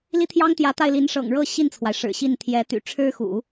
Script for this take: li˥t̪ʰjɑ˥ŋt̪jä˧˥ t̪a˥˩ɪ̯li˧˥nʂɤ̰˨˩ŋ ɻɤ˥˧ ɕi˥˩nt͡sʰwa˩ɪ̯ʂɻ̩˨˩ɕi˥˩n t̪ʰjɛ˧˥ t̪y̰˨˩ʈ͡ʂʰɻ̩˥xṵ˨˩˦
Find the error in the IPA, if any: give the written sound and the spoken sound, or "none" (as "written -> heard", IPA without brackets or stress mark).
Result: none